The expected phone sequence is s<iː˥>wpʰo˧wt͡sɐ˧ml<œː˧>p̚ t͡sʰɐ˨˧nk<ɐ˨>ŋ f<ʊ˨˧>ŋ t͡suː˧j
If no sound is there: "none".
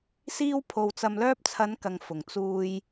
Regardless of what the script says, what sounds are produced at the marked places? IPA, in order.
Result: iː˥, œː˥, ɐ˨, ʊ˨

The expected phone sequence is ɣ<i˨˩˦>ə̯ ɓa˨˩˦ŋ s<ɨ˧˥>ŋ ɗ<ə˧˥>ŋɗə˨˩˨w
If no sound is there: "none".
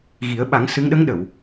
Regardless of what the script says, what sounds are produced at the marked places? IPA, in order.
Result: i˨˩˦, ɨ˧˥, ə˧˥

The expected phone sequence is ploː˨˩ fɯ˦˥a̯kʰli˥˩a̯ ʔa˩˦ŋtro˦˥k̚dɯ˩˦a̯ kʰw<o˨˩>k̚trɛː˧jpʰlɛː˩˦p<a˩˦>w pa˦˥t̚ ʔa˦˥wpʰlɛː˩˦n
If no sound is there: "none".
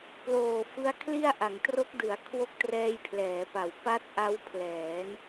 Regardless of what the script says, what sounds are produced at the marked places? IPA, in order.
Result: o˦˥, a˩˦

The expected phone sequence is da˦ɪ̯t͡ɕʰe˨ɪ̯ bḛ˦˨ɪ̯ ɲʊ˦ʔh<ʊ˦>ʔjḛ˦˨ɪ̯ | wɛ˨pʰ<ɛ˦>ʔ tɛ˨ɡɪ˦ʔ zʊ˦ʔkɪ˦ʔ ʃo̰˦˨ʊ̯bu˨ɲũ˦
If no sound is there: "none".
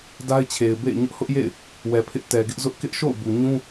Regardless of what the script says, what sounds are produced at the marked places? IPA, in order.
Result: ʊ˦, ɪ˦

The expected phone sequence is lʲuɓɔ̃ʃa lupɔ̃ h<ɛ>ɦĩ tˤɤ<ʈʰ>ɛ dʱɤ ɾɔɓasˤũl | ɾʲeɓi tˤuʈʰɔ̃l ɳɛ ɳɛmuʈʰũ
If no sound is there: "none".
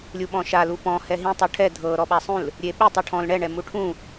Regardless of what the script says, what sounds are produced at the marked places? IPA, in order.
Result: ɛ, ʈʰ

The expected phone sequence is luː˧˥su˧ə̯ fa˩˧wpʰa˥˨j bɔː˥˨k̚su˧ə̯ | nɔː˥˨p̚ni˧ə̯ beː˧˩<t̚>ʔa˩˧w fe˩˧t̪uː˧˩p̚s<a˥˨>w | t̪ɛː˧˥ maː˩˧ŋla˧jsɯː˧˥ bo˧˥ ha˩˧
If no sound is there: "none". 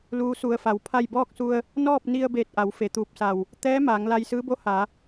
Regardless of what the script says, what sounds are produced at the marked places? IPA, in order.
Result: t̚, a˧˩

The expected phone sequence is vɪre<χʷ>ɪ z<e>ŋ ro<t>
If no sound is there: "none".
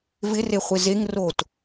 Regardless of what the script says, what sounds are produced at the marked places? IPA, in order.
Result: χʷ, e, t

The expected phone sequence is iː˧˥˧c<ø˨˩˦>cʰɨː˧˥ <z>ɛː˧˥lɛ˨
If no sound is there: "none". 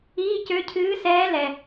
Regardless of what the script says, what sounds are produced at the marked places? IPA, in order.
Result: ø˧˥, s

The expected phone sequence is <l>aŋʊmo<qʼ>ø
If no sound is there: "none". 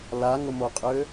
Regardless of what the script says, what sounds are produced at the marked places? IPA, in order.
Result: l, qʼ

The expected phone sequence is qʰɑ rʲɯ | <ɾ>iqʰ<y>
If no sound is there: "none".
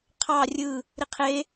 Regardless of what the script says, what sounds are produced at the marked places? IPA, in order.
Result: ɾ, e

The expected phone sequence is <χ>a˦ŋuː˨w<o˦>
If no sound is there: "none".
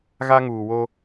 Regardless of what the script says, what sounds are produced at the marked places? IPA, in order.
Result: ɣ, o˦

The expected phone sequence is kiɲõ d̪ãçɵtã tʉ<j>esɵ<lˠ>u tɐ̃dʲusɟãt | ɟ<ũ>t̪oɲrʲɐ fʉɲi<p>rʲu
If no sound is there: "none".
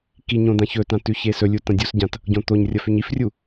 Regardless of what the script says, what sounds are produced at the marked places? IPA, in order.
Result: ç, lʲ, õ, f

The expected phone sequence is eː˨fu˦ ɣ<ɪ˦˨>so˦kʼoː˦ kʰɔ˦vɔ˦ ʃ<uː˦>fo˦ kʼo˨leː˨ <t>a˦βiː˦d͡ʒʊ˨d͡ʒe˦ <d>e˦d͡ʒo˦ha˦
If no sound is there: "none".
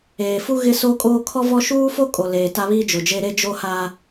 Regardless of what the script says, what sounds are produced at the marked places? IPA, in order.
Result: ɪ˦, uː˦, t, ɾ

